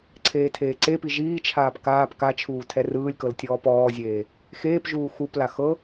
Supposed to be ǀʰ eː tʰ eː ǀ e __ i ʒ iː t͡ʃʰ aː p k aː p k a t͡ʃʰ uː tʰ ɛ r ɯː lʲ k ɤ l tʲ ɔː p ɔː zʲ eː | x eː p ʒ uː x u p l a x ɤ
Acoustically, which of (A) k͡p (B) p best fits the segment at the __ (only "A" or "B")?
B